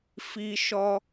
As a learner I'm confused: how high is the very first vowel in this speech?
high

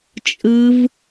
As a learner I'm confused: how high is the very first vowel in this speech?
high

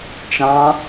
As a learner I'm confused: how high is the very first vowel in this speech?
low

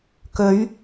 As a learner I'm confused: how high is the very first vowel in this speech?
mid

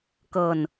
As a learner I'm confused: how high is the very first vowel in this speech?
mid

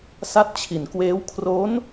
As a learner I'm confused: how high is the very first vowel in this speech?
low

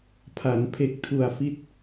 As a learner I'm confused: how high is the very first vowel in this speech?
low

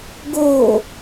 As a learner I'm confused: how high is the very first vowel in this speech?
mid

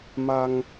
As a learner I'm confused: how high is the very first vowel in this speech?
low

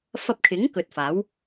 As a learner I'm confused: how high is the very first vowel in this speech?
low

